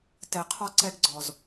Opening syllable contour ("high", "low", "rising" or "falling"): low